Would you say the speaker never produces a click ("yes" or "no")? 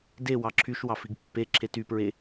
no